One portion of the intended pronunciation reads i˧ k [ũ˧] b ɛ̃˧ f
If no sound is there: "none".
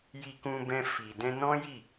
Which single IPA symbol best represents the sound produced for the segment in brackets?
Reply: ũ˧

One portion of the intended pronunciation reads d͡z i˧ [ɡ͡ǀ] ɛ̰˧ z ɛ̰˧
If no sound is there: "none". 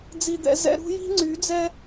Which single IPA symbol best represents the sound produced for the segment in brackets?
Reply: d̪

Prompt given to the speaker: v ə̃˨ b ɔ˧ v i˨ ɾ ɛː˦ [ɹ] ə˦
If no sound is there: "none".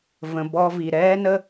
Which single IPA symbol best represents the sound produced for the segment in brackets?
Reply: n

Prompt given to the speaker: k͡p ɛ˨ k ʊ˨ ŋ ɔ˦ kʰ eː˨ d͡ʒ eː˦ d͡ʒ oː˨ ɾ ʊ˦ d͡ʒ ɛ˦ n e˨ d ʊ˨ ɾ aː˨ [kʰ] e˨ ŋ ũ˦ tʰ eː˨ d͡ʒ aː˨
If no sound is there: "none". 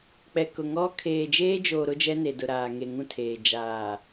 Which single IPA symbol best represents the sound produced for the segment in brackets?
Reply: ŋ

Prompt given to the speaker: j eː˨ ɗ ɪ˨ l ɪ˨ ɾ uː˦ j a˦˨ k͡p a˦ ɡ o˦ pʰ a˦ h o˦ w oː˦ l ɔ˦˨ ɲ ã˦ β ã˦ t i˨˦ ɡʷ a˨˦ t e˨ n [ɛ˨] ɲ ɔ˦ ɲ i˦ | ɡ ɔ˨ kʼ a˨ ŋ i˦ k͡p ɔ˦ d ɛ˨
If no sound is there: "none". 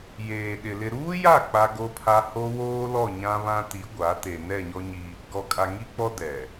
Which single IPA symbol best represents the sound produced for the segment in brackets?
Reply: ɛ˦˨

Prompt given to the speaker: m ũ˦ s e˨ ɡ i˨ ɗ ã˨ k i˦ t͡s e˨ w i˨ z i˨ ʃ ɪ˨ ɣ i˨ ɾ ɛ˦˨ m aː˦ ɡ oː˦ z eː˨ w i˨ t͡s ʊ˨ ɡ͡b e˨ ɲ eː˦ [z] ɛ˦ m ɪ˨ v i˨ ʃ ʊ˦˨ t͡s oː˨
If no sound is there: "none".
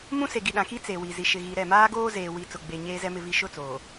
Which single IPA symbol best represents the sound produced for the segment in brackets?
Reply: z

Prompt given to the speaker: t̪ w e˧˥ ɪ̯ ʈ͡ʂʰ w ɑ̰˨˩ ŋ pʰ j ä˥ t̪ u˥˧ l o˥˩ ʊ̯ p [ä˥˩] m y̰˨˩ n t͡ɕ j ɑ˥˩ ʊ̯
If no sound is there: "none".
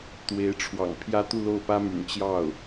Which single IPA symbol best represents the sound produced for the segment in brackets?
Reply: ä˥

